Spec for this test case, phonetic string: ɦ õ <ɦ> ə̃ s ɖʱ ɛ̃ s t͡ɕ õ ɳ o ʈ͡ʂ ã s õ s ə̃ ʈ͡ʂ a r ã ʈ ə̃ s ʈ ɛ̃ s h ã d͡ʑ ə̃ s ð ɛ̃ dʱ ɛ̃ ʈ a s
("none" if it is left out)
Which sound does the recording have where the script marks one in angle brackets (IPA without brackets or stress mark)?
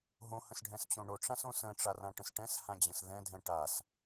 h